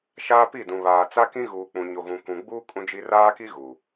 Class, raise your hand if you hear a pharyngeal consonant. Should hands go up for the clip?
no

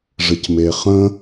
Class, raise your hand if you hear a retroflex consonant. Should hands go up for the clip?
yes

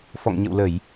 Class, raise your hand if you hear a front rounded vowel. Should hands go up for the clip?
no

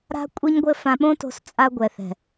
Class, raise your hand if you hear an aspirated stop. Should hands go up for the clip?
no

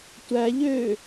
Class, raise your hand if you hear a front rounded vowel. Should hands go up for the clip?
yes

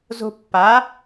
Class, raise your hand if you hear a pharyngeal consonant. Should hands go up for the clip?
no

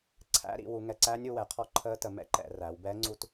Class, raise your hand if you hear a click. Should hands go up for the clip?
yes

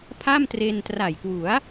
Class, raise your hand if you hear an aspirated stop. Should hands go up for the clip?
yes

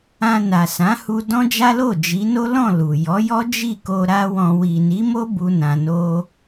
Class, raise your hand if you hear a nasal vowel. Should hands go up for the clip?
yes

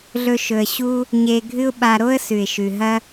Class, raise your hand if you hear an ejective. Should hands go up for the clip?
no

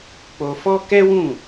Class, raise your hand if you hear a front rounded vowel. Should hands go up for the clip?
no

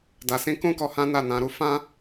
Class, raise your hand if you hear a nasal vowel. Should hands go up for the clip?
yes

